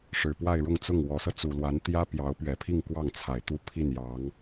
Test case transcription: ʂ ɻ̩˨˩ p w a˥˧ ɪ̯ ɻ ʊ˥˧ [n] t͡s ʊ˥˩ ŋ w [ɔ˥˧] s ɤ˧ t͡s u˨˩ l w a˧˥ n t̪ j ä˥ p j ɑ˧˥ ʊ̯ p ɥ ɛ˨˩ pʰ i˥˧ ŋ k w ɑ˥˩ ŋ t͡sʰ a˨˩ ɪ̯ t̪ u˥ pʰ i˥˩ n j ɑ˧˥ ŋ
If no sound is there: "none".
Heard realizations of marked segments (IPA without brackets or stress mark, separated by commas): ŋ, ɔ˧˥